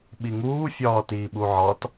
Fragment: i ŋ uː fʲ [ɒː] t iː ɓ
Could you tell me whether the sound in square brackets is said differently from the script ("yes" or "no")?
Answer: no